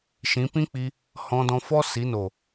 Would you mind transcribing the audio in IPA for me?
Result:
ʃ ĩ˨˦ p ĩ˦ k͡p i˧ | h ɔ̃˧ d ɔ̃˧ f ɔ˦ s i˨˦ n o˨

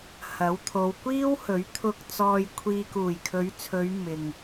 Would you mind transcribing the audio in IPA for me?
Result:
h ɐ˨˥ w t̪ʰ o˨˧ w kʷ iː˥ w h ɵ˨˥ ɥ t̪ʰ ʊ˨ k̚ t͡s ɔː˨ j kʷʰ iː˨ k uː˨˩ j kʰ ɵ˨˧ ɥ t͡sʰ ɵ˨˧ ɥ m ɪ˨ ŋ

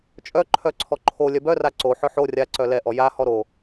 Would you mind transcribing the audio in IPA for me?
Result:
t͡ʃʼ œ ǃʰ œ ǀʰ ɔ ǃʰ o lʲ œ b œ r a ǀ o ħ œ ħ o rʲ a ǀ œ l ɛ ʔ ɔ j a h ɔ ɾ o

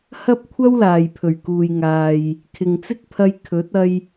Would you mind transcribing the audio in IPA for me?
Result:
h ɐ˥ p̚ kʷʰ ɐ˥ w l aː˨ j pʰ ɵ˨˩ ɥ k uː˨ j ŋ aː˨ j | kʰ ɪ˨ ŋ t͡s ɪ˥ k̚ pʰ ɐ˧ j kʰ ɵ˨˥ t̚ ɐ˧ j

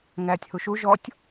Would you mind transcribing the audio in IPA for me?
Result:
ŋ æː tʲ h u ʃ u ʒ ɔ tʲ

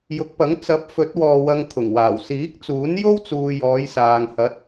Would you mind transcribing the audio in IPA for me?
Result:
j ʊ˨˥ k̚ p ɐ˨˥ ŋ t͡s ɐ˨˥ p̚ f ɵ˨˥ t̚ w ɔː˧ w ɐ˧ ŋ t̪ʰ ʊ˨˩ ŋ w aː˨˩ w s iː˨˥ k̚ t͡s uː˨˥ n j o˥ w t͡s uː˨ j ɔː˨˧ j s aː˨ ŋ h ɐ˨˥ t̚

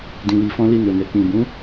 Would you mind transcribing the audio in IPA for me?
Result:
d ĩ˨ w i˨ f ɔ̃˧ l i˧ n o˨ n ɛ˨ k͡p ĩ˨ b ũ˨˦

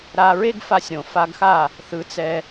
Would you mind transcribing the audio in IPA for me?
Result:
ɾ a˧ ɹ e˥ ɡ f a˧ sʲ ɾ õ˩ f a˧ ɡ x a˥˩ | θ ɯ˩˥ t͡s ɛ˧

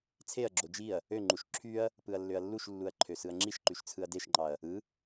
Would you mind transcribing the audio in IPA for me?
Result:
t͡sʰ e ɐ̯ ɡ͡ǁ o d͡ʒ i ɐ̯ | ø ŋ͡ǃ u ʃ ǁʰ y ɐ̯ | p ɯ ɐ̯ lː ø ɐ̯ lː u ʃ lː u ɐ̯ ǃʰ ø s ɯ ɐ̯ ŋ͡ǁ i ʃ ǃ y ʃ t͡sʰ ɯ ɐ̯ d e ʃ ŋ͡ǃ ɑ ɐ̯ | ɯ

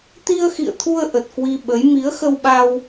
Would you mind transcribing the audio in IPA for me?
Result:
t̪ i˧ ə̯ x ḭ˧˨ ə̯ t̪ʰ u˧ ə̯ ʔ ə˨˩ t̚ k w i˧ ɓ ə˨˦ j m i˨˦ ə̯ x ə˧ w ɓ a˧ w

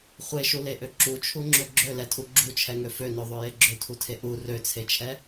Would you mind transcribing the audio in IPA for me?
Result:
χʷ e ʃ u l e ʔ ø ǁ u t͡ʃʰ u ŋ͡ǁ ø ɡ͡ǁ ø l ɛ tʰ u ɡ͡ǁ u t͡ʃʰ ɛ ŋ ø f ø n ø ðˤ ø j e ɡ͡ǁ ø tʰ u tʰ e ʔ u r ø t͡sʰ e t͡ʃʰ ɛ

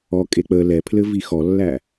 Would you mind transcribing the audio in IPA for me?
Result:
ɔ kʼ e k͡p ə l ɛ pʰ l ɘ v i x ɔ lː æ

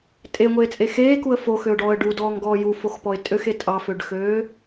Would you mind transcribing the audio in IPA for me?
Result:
tʼ e ŋʷ eː t͡sʼ e x eː k u ə̯ f o x ø ʊ̯ ɖ ɔː ə̯ ɖ u d ɔː ŋ ɡ ɔː j u f o x p ɔ ɪ̯ tʼ ø x e tʼ ɑ f ø ɖ x øː

